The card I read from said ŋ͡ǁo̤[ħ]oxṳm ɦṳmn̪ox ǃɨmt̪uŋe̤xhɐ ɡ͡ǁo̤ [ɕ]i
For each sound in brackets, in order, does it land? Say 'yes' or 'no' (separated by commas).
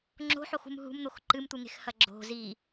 yes, no